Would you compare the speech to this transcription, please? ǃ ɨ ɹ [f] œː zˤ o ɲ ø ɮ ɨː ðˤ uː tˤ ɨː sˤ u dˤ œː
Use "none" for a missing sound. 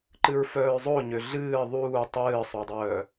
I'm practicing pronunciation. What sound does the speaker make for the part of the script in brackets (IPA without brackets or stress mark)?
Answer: f